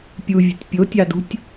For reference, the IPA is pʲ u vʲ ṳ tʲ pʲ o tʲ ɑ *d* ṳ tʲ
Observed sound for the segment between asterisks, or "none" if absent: d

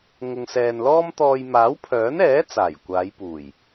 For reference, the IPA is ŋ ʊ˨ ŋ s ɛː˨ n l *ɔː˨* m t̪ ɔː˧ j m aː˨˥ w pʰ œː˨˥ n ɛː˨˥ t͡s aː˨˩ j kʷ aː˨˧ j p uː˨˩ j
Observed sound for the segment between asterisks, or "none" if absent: ɔː˥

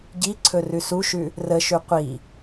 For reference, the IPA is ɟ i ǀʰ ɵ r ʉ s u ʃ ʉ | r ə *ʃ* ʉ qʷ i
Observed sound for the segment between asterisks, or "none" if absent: ʃ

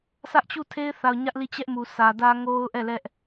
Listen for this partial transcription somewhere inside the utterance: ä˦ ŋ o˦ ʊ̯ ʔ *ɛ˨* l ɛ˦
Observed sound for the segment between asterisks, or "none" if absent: ɛ˦˨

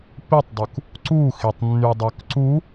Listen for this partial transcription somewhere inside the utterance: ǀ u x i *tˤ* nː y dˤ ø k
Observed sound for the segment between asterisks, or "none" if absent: tˤ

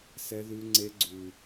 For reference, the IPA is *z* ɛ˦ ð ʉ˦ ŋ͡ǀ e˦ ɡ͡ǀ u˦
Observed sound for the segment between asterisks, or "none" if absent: s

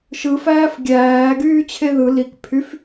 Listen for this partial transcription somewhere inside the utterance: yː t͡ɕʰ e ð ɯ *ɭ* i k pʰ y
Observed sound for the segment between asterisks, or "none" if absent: l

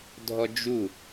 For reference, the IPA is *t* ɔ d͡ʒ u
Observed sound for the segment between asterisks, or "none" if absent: dʱ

